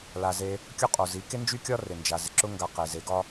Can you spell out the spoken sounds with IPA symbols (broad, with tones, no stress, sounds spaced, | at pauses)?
l a˨ z e˧ | kʲ ʊ˦ qʼ o˨ z i˨˦ k e˦ n d͡ʒ y˦ kʲ ɒ˦ r ɪ˨ n d͡ʒ a˨ z ɪ˨ ǁ ʊ˦ ŋ ɡ a˧ q e˨ z e˨˦ ɡ ɒ˦